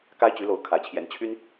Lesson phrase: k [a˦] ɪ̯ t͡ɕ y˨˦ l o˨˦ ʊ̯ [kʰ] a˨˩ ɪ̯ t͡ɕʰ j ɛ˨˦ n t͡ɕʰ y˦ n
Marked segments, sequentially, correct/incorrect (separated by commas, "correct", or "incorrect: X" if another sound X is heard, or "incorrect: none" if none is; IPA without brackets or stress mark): correct, correct